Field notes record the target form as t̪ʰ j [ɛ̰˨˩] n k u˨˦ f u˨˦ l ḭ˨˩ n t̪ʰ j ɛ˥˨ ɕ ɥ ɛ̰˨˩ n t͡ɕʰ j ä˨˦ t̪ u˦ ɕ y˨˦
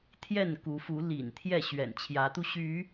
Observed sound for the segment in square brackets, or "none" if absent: ɛ˥˨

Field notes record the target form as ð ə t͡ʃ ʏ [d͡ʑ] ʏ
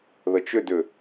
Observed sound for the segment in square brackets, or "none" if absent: d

